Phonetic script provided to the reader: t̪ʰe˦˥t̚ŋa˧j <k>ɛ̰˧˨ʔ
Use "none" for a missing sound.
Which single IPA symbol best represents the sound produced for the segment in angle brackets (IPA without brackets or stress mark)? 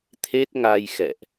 x